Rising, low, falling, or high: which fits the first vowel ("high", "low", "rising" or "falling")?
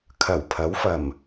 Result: low